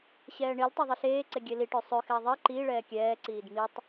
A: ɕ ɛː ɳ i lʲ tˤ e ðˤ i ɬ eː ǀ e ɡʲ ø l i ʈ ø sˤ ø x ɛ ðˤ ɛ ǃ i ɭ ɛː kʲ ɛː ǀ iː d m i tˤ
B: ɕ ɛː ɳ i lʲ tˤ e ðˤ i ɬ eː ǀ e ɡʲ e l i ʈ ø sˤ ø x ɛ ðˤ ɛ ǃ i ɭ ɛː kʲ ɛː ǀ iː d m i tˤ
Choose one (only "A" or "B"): B